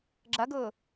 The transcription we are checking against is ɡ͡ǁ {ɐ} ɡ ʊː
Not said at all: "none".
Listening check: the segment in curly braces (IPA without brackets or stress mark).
ɐ